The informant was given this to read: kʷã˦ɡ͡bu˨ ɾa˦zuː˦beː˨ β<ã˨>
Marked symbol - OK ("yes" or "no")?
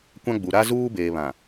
yes